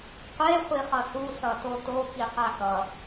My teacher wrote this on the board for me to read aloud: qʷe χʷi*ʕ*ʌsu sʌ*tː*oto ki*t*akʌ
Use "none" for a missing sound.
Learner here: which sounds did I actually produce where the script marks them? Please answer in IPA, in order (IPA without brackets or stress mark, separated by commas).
χ, t, q